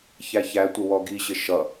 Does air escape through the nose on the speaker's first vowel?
no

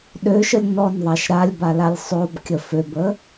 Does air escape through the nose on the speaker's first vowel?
no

